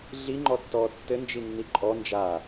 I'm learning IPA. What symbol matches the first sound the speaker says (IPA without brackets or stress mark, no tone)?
ɮ